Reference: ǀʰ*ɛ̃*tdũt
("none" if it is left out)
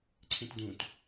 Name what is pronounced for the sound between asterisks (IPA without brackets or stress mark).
ẽ